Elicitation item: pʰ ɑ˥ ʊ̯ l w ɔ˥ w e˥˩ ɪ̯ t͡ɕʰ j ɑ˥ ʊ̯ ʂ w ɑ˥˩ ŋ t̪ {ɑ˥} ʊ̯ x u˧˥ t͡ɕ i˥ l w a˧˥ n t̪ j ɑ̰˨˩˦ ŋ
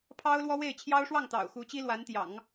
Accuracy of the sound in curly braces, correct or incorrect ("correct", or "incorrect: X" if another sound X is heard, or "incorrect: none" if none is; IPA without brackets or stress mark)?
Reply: incorrect: ɑ̰˨˩